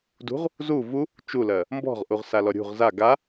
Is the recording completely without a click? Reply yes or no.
yes